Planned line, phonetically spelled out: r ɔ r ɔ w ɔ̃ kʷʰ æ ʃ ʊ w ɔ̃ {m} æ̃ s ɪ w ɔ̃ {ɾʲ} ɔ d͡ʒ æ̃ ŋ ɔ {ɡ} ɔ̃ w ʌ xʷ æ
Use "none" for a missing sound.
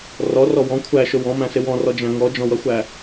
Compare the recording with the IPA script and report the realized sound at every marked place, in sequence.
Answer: m, r, d͡ʒ

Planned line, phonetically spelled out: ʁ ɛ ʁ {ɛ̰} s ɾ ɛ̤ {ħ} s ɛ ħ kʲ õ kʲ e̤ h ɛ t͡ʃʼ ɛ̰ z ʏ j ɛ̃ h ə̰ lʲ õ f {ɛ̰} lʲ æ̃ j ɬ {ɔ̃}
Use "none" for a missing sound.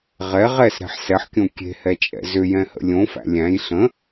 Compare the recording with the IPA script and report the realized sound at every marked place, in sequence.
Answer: ɛ, ħ, æ̰, ə̃

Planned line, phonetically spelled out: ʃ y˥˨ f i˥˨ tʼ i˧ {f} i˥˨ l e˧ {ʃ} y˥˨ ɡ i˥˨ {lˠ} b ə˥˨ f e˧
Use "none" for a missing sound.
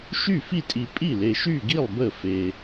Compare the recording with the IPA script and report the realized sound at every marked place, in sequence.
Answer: pʼ, ʃ, lˠ

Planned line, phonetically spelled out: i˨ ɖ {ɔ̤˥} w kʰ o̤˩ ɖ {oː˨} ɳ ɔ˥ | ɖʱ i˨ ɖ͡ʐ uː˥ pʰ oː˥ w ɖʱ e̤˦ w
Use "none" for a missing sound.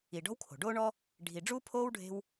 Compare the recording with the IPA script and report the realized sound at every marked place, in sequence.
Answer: ɔ̤˥, oː˥

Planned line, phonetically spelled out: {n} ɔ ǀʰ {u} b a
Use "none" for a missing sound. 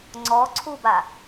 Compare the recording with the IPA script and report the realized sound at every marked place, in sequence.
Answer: ŋ͡ǀ, u

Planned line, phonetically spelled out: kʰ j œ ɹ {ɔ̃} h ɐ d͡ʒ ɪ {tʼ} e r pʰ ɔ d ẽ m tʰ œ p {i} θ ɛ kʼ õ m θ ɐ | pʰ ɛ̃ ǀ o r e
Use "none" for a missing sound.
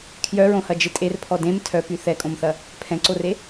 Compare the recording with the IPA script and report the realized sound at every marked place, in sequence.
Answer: õ, tʼ, y

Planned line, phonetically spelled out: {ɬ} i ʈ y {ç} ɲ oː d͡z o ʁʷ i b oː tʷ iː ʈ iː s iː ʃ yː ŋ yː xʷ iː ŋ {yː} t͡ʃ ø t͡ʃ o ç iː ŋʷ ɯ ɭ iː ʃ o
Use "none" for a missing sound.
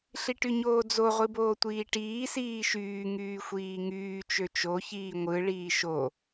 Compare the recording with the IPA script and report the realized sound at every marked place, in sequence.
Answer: ɬ, none, yː

